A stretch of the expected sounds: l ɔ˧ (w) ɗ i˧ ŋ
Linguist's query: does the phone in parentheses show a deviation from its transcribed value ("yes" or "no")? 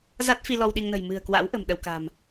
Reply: no